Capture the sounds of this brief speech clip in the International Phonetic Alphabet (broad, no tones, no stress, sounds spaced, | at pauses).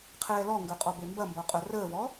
qʰ ɛː l ɔ ŋ ɡ œ qʼ ɔ b e m b ɐ m b ɔ qʼ œ r əː v ɔ